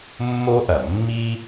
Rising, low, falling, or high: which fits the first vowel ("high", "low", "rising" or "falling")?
high